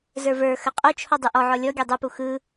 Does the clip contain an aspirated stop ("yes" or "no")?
yes